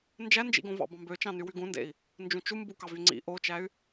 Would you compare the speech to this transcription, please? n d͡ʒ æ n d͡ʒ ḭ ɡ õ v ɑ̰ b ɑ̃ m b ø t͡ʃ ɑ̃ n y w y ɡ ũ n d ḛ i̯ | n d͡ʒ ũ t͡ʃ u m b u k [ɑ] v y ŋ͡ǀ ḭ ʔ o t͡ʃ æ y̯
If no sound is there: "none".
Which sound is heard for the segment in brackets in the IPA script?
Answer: ɑ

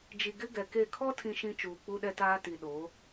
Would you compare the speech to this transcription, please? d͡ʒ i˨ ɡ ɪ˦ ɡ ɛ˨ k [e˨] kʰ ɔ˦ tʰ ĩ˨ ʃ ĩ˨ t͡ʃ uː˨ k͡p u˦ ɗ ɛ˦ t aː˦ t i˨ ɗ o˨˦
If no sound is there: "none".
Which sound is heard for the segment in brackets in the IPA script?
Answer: e˦˨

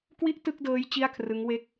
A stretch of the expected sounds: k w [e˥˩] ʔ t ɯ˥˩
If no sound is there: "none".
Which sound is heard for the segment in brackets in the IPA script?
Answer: i˥˩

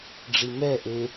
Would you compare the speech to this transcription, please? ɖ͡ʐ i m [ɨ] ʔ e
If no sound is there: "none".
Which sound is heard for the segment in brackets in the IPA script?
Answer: ɛ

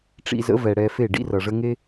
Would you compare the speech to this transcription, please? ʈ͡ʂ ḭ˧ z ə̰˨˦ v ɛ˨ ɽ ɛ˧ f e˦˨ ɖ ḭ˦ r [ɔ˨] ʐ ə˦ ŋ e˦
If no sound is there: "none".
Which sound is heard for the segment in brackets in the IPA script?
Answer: ʌ˨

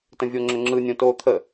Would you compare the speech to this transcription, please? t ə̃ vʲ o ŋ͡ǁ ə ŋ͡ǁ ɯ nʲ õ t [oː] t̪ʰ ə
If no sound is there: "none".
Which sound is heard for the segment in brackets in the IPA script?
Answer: oː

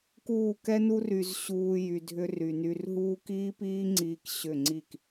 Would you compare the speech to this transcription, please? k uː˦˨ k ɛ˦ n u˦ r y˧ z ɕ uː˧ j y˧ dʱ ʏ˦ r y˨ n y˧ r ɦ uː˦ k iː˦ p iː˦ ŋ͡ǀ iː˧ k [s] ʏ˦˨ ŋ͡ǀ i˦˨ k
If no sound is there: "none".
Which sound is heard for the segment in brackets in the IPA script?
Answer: ɕ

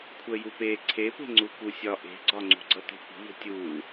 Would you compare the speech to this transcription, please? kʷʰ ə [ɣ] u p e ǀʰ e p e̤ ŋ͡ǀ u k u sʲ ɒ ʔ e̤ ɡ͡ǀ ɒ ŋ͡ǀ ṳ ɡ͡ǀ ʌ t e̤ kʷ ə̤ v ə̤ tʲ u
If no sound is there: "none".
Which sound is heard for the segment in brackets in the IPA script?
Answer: j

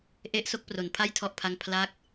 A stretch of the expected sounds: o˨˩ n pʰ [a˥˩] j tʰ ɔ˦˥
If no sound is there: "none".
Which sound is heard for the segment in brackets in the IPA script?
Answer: a˥˩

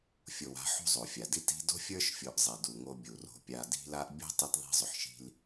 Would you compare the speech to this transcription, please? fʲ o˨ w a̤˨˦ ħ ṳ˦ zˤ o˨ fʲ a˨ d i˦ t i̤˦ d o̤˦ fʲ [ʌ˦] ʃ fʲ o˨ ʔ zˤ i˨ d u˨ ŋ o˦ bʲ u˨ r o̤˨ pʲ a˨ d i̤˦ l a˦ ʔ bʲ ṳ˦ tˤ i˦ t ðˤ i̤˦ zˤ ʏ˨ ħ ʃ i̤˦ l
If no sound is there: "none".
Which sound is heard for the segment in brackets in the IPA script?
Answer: ə˞˦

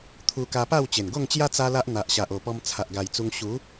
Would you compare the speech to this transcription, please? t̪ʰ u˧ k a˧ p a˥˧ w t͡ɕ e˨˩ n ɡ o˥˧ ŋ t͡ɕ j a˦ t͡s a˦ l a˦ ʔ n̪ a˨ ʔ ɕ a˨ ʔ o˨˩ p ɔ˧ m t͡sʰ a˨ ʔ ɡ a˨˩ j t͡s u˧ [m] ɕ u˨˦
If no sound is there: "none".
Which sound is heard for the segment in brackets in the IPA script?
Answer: ŋ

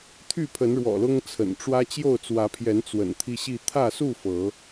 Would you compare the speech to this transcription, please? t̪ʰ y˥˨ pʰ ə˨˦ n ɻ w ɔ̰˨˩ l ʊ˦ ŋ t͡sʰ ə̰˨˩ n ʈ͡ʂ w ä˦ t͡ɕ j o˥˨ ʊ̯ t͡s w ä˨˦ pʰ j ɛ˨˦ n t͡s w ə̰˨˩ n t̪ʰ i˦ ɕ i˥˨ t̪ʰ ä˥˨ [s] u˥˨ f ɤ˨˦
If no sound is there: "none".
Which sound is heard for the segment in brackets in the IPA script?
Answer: s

